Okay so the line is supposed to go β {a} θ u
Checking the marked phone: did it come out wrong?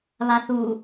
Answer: no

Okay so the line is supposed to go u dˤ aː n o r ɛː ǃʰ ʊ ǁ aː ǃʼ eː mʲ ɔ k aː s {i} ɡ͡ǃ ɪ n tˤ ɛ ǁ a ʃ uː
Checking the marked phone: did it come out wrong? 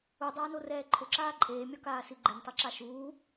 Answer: no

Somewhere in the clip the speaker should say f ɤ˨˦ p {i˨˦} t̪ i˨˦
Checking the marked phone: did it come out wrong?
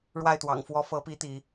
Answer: no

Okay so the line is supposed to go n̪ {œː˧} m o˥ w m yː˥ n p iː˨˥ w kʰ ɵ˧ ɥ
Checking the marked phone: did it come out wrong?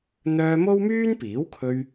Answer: no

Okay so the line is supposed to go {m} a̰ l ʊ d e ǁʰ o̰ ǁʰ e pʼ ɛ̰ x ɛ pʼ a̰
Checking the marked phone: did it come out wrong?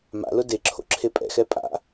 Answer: no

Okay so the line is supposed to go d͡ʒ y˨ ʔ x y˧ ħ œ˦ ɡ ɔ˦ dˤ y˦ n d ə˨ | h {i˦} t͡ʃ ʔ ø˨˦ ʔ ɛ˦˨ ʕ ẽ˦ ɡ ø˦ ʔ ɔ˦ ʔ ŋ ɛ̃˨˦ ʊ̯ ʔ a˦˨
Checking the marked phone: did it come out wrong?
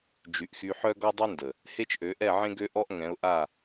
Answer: yes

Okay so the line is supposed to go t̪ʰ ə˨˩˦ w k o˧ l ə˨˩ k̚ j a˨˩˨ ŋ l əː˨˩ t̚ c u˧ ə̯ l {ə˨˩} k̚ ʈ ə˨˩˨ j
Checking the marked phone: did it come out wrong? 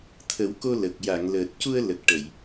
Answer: no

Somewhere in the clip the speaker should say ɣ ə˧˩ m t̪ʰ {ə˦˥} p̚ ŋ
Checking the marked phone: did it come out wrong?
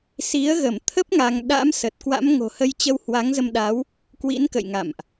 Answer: no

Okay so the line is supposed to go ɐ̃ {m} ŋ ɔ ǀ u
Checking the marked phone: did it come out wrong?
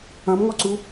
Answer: no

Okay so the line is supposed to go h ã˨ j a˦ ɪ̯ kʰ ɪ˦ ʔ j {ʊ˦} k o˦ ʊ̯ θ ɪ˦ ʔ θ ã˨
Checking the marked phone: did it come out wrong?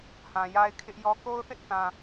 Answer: yes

